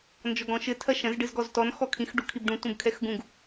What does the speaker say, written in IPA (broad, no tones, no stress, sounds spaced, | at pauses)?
n d͡ʒ ɔ ɡ ɔ̃ ʃ ɘ tʰ ɐ ʃ ɐ̃ z ɖ ɨ z ɡ ɔ z t ɔ n x ɔ kʰ ĩ x ɖ u kʰ i b ɖ ũ t ũ b kʰ ɛ x ɡ ũ ɡ